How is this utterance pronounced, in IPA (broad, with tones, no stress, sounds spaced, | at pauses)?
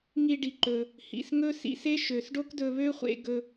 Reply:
ŋ i˧ ɖ i˩ ǃ ɵ˩ | h ḭ˩ s ŋ ɵ˥ s ḭ˧ s e˥ ʃ ø˩ s ɖ o˥ k d ɵ˧ β ø˥ χʷ ḛ˧ ɡ ɵ˧